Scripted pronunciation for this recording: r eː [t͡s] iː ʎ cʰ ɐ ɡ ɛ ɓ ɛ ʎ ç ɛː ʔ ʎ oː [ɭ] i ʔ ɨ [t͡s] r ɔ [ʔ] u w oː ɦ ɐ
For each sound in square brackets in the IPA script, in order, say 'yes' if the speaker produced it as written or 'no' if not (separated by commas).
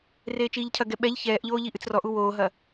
no, no, yes, yes